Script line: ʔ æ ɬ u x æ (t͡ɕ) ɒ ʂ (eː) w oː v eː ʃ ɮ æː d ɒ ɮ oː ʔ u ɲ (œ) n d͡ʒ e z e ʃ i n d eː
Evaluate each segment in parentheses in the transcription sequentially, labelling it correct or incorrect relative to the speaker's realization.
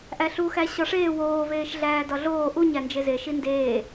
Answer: incorrect: ɕ, correct, incorrect: æ

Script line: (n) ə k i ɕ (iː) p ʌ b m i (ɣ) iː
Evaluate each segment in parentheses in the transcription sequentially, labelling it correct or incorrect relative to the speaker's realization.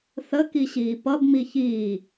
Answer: incorrect: θ, correct, incorrect: ç

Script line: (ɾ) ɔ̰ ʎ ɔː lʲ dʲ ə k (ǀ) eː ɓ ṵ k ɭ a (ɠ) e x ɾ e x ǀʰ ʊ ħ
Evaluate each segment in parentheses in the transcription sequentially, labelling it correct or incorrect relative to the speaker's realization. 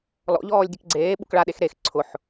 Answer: incorrect: l, incorrect: ɡ͡ǀ, incorrect: ɗ

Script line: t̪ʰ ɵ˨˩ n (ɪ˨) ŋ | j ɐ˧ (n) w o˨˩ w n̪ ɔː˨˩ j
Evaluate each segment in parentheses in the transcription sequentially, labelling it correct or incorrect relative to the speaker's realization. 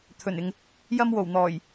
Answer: correct, incorrect: m

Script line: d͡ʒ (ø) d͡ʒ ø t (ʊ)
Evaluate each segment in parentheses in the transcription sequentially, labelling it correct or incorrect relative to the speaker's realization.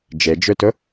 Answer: incorrect: e, correct

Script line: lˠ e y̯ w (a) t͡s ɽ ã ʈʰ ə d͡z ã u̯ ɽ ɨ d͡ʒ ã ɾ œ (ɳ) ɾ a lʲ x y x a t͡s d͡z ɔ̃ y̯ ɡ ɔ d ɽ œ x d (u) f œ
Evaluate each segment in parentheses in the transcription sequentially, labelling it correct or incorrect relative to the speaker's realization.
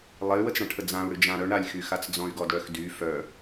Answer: incorrect: ə, correct, incorrect: y

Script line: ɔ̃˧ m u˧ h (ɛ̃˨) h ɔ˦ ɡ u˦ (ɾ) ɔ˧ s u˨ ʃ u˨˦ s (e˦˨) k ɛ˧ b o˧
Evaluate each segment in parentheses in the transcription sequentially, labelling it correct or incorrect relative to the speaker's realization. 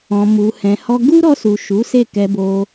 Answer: incorrect: ɛ̃˧, correct, correct

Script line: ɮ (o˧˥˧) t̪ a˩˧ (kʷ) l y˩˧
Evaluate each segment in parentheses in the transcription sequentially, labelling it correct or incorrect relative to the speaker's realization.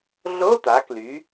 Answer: correct, incorrect: k

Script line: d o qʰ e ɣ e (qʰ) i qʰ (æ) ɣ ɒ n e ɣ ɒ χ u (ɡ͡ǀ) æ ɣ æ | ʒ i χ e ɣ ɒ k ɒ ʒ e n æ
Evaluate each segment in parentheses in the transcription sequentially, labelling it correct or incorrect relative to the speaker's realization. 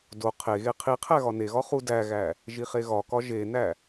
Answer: correct, correct, incorrect: d

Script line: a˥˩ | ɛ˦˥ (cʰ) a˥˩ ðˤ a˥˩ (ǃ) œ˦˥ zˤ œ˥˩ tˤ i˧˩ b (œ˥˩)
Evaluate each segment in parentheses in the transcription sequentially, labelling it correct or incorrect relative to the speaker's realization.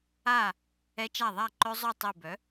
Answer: incorrect: t͡ʃ, correct, incorrect: œ˩˥

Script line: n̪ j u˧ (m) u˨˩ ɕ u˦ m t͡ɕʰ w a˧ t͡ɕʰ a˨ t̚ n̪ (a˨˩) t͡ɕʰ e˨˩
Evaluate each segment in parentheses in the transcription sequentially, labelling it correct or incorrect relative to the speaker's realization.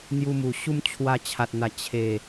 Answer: correct, correct

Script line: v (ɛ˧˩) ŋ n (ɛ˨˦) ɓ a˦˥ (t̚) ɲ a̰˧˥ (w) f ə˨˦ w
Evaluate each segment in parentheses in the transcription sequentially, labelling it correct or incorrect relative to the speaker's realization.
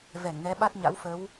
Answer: correct, correct, correct, correct

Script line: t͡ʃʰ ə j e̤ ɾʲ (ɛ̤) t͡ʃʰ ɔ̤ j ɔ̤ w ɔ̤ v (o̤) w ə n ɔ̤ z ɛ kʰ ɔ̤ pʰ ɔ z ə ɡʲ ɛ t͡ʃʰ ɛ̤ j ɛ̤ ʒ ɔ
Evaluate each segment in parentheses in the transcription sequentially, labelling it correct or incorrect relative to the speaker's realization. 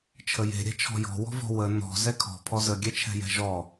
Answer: correct, incorrect: ɔ̤

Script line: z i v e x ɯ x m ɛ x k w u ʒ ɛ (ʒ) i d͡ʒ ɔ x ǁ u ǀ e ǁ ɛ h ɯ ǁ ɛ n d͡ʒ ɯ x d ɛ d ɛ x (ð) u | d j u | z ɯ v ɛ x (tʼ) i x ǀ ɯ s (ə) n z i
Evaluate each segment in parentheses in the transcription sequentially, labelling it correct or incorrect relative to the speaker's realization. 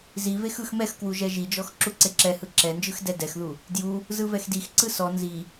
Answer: correct, correct, incorrect: d, incorrect: ɔ

